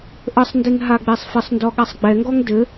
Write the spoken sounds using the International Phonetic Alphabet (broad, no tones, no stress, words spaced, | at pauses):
ʔəsˤndeŋ ɦaɡ͡besˤfɘsˤndɔ ɠasˤɡ͡bɛŋɡɔŋ dɘ